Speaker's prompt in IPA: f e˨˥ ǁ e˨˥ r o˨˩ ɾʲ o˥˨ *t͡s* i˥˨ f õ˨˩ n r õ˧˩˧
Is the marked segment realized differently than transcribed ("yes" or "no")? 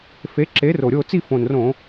no